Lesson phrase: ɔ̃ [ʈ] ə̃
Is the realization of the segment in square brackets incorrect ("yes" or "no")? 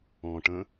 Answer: no